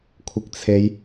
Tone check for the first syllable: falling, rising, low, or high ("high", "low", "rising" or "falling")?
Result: low